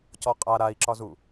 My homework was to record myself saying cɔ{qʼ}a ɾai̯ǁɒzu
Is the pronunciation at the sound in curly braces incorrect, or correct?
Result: correct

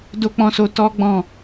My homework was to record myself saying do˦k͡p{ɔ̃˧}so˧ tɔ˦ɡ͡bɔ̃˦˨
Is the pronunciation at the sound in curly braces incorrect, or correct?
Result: incorrect: ɔ̃˦˨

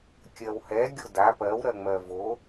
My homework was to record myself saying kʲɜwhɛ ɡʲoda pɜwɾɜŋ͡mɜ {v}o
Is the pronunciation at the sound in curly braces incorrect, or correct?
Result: correct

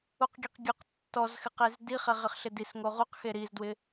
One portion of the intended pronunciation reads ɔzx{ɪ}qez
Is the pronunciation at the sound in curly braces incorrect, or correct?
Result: correct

